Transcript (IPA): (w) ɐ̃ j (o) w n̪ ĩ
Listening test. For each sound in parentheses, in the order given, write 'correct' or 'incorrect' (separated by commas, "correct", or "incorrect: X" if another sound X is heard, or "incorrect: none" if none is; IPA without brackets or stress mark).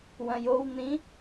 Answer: correct, correct